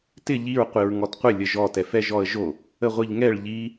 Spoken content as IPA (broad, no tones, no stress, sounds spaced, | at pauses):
t ɪ ʎ i ɹ qʷ i ɹ ŋ ɔ t qʷ ɪ lʲ ə ʒ ɔ t ɛ f ɛ ʒ ɔ ə̯ ʒ o | ə ʁʷ i ʎ ŋ ɛ ɭ ʎ i